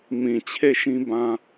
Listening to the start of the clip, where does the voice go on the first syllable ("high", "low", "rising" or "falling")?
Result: low